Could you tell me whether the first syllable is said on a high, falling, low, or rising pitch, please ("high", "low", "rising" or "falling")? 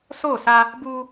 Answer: falling